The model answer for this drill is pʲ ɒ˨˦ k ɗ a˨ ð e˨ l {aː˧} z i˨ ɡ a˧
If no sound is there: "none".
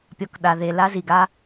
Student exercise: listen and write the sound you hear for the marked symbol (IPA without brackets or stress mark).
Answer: a˧